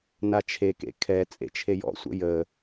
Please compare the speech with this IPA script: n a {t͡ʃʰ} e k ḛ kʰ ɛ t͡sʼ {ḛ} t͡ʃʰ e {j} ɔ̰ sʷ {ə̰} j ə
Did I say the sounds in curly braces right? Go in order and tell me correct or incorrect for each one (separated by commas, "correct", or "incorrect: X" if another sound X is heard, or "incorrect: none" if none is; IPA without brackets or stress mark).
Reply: correct, correct, correct, correct